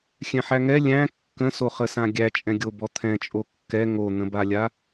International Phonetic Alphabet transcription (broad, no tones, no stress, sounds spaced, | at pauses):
xʲ ɛ̃ ħ æ ŋ ɛ lʲ æ̃ kː ə̃ s o χ ə s ã ɡʲ æ t͡ʃʼ ɛ̃ ɡʲ o b ɔ t̪ʰ ɛ̃ t͡ʃʼ o kː ɛ ŋ o n̪ ə̃ b a lʲ a